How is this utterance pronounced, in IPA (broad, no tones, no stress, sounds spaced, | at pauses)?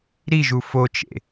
ɾ i ʒ u f o t͡ʃ ḛ